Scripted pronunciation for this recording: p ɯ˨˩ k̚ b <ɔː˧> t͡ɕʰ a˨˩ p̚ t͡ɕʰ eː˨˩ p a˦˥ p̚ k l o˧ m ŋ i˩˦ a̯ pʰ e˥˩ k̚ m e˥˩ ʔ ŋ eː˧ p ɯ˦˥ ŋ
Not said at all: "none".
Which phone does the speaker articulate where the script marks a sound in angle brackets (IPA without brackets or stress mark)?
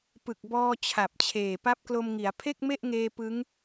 ɔː˧